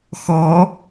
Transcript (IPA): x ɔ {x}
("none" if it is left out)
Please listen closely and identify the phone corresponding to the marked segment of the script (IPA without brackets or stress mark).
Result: none